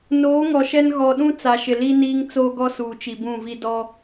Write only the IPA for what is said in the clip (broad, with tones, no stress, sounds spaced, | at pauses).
n oː˨˦ ŋ ɔ˨ ʃ ɛ˦ n ɣ ɔ˨ ɗ ũ˦ t͡s a˨ ʃ ɪ˨ l i˦ n iː˦ ŋ t͡s oː˦ ɡ ɔ˦ s uː˨ t͡ʃ i˨ b ũ˦˨ v i˦ d ɔ˦